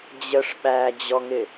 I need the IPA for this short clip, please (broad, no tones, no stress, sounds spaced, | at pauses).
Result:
d͡ʑ ə ʂ ɓ æ d͡ʑ ɔ ŋ ɪ